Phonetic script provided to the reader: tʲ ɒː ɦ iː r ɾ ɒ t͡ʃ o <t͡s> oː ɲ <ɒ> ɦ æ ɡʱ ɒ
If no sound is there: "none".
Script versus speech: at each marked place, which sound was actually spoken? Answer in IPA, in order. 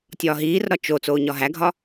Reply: t͡s, ɒ

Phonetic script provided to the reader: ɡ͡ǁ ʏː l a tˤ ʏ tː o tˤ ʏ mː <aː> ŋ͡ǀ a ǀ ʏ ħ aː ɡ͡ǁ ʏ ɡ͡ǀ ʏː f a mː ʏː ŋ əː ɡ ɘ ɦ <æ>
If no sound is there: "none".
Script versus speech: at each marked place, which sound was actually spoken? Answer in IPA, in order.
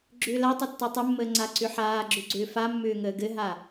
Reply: əː, a

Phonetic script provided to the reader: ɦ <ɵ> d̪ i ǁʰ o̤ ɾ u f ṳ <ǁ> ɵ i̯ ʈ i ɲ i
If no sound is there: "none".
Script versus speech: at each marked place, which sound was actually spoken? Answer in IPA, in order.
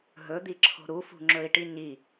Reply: ɵ, ŋ͡ǁ

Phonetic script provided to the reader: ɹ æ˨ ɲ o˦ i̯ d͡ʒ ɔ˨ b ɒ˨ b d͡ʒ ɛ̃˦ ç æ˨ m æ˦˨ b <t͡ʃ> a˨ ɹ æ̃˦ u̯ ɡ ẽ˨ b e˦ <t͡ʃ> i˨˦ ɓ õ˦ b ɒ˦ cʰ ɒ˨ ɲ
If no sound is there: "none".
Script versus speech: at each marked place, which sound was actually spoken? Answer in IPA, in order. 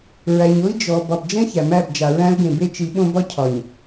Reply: d͡ʒ, t͡ʃ

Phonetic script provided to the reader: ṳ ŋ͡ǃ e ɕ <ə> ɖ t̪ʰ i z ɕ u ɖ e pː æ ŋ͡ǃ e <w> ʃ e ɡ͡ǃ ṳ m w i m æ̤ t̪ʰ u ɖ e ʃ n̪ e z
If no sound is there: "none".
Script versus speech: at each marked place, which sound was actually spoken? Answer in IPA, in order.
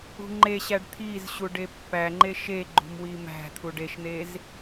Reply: æ, none

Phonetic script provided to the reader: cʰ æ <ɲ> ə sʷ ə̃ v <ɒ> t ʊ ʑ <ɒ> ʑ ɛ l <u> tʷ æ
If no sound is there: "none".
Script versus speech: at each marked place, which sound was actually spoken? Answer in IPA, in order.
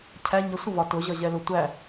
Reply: ɲ, ɒ, ʌ, ʊ

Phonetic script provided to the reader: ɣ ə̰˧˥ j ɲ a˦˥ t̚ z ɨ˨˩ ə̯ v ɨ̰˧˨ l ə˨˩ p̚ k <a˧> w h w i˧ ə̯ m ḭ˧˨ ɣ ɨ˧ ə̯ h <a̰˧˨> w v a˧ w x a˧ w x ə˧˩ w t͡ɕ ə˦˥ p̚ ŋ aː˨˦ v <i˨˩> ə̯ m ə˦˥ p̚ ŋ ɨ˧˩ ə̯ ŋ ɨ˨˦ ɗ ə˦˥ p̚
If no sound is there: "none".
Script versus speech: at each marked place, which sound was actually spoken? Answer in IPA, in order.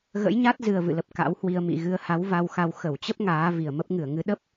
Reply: a̰˧˥, a˨˦, i˨˩

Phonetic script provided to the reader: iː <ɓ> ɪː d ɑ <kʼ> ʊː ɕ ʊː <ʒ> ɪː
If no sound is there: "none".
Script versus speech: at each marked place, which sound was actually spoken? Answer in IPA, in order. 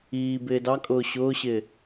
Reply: b, kʼ, ɕ

